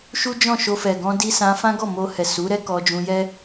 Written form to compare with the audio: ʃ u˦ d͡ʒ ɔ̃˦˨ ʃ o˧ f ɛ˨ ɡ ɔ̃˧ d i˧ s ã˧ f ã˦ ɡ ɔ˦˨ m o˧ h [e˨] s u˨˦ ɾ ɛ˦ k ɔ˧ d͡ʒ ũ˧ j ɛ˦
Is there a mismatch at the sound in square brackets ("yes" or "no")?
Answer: yes